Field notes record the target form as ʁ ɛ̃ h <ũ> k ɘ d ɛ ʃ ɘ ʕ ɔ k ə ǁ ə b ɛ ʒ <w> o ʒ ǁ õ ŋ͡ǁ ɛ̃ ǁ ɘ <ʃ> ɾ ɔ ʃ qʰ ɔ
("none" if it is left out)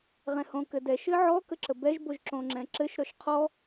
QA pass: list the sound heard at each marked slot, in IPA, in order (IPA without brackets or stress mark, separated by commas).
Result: õ, b, ʃ